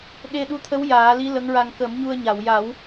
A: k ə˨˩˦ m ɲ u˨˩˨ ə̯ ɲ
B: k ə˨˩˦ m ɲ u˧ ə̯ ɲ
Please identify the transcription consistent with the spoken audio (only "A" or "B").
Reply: B